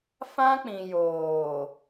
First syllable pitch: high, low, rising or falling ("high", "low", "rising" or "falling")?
high